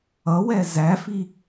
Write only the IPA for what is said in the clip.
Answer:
ʌwɛ zæfi

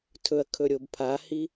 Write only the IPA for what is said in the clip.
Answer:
tʰɵɐ̯kʰɵɾʲob pʰahi

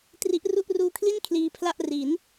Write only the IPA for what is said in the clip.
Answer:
tri˦˥ʔru˥˩ʔ ruː˧kʰli˥˩n kʰliː˧pʰla˥˩ʔ ri˩˦n

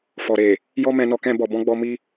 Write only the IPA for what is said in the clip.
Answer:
fɔ˨ɾe˨ | jɔ˦ mɛ̃˧nɔ˧ kɛ̃˧bɔ˨bɔ̃˧ɡ͡bɔ˧ mi˦

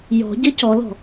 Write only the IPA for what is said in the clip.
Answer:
jɔ̤ɟɘ cɔlɔ̤

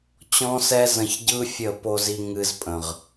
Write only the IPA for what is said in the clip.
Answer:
t͡ɕɔ̃˦sɛ˦zə̃˧ç ɟɯ˦fʲə˦˨ po˧zi˧ ŋɨ˧z pʼə̃˨ʁ

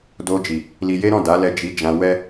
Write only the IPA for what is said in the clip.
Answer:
do˧d͡ʒi˨ | li˧je˦ɾɔ̃˦˨ da˨˦lɛ˧ d͡ʒi˧d͡ʒã˧wɛ˦

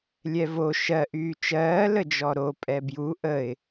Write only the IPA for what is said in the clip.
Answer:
lʲɛvo ʃɜʔyː t͡ʃɜː ləd͡ʒɔɾo pʼɛbju ʔəɪ̯

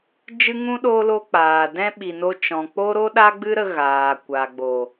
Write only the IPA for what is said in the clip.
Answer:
d͡ʒɨ˦ŋũ˦ ɗo˧lo˧ k͡paː˨dɛ̃˦ ɓi˨no˧t͡ʃɔ̃˨ k͡po˦ ɾo˦ɗa˦ɡ͡bɨ˦ɾə˧ ɣaː˨kʷa˨ɡ͡bo˨

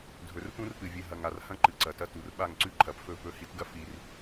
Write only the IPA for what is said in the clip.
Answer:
dʱɵ˨rpũ˦rpɨ˨ vʲɨ˨ɦɐ˨ŋ a˨rhɐ̃˦ ǃɨ˨ǀɐ˨tɐ˦ tu˨rɓa˦˨ŋǀʉ˦ ǃʰɐ˨pfɵ˦˨ pɵ˦˨hi˦tɡɐ˦ fi˨r

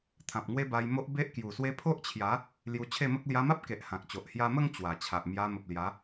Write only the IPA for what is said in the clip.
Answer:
t̪ʰã˨p̚ŋwe˦ba˧jmo˦ʔ be˦ʔkju˨˩swe˦ pʰo˦ʔt͡ɕʰja˨˦ | lju˧ t͡ɕʰe˥˧mə˦k̚ lja˧ma˦p̚ ke˨ʔ hã˨k̚t͡ɕo˨ʔ hja˧mə˥˧ŋ t͡ɕwa˨˩t͡ɕʰa˨ʔ mja˧mə˨p̚ lja˨˦

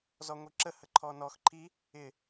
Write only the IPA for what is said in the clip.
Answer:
zɔŋʷiǁəhə ǃʰɔnɔx ǃʰi | ɪ

